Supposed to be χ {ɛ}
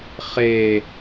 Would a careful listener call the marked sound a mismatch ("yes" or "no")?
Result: yes